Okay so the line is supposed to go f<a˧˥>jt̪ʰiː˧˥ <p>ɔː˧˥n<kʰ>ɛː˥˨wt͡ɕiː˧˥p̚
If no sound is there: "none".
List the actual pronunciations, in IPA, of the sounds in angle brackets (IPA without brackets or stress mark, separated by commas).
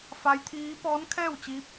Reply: a˧˥, p, kʰ